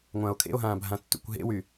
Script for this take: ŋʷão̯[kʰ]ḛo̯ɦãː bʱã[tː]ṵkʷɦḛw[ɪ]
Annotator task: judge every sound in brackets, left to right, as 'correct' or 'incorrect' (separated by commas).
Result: correct, correct, incorrect